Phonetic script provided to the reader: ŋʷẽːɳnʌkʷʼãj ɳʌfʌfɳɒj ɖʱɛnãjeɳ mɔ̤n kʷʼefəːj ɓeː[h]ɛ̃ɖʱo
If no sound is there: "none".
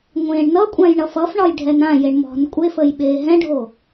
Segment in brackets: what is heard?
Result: ɦ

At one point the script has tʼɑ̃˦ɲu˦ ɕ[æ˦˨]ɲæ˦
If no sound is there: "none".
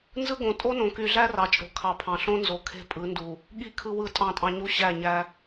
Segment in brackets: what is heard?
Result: æ˦˨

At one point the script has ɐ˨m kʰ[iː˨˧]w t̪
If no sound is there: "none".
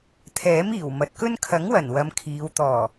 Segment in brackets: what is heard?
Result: iː˨˧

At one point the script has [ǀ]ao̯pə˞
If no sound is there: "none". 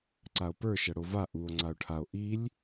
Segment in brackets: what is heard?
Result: ǀ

